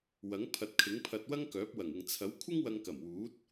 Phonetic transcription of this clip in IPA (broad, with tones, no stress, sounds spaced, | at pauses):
w ɐ˨˥ ŋ pʰ ɐ˨˥ t̚ kʰ ɪ˨˥ ŋ pʰ ɐ˧ t̚ w ɐ˥ ŋ k œː˨˥ p̚ w ɐ˨˩ ŋ ɪ˨ ŋ t͡sʰ ɐ˨˥ w kʷʰ ɪ˥ ŋ w ɐ˧ ŋ k ɐ˨˩ m w uː˨˥ t̚